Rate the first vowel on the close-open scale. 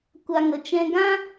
open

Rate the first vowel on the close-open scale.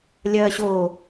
open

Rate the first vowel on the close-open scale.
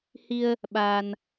close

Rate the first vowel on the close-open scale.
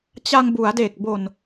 open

